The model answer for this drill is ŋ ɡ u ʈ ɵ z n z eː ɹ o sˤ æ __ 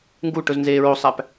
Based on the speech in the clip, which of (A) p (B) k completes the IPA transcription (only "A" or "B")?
A